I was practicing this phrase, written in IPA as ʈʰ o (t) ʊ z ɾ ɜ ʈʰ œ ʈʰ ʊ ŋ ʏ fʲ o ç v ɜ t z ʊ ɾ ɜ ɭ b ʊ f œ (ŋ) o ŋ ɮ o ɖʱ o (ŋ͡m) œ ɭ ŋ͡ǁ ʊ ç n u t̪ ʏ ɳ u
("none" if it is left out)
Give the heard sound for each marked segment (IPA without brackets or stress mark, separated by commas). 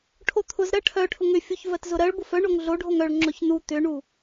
t̪ʰ, ɳ, ŋ